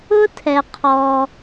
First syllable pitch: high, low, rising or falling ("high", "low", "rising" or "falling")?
high